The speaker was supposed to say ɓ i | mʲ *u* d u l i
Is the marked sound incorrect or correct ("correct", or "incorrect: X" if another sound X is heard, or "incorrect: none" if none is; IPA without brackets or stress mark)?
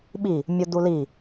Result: correct